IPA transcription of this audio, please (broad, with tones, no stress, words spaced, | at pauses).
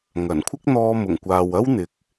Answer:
ŋɐ˨˩nkʷʰɪ˥k̚ n̪ɔː˧mʊ˨˩ŋkʷaː˨wɐ˥w n̪ɪ˨˥k̚